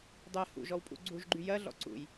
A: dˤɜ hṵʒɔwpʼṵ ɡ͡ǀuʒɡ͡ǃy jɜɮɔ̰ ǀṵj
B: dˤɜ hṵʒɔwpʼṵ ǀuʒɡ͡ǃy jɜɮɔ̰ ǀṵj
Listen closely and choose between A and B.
A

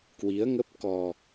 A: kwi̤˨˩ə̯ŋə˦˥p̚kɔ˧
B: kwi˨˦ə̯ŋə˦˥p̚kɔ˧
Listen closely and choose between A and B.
B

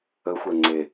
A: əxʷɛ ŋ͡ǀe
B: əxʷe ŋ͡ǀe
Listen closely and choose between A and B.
A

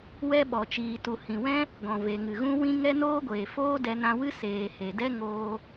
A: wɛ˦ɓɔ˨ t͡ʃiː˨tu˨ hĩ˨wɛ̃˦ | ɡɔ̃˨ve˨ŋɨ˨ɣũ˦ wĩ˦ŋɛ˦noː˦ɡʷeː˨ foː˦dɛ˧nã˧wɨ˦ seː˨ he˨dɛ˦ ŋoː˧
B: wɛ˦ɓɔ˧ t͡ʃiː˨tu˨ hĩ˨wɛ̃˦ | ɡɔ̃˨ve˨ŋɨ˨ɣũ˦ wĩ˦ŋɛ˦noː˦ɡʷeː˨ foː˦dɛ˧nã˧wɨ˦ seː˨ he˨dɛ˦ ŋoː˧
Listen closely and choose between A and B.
A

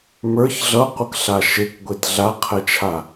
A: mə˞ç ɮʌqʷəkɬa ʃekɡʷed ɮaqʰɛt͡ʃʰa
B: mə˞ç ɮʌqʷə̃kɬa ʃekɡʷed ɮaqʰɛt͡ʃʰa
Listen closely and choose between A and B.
A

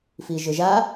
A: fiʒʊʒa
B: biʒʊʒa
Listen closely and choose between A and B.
A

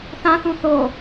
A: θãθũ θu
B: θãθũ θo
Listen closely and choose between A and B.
B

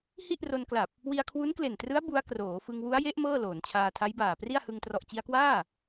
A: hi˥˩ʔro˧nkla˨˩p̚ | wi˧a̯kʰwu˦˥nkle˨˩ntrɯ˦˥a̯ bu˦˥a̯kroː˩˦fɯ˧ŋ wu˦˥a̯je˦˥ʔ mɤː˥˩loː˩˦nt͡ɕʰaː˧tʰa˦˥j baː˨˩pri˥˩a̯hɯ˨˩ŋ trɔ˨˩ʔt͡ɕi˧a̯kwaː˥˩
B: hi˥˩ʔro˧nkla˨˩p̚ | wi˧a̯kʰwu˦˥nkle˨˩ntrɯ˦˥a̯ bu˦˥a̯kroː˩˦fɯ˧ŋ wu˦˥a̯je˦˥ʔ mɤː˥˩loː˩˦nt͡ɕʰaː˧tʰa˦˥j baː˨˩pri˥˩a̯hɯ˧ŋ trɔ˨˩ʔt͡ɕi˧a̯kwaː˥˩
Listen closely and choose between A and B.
B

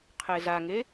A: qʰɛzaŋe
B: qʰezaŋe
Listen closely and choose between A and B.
B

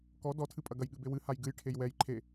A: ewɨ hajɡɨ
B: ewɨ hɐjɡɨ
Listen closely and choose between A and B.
A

